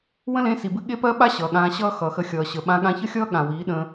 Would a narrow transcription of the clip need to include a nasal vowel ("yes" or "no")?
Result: yes